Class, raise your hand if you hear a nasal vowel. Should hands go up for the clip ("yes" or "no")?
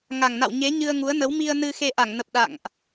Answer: no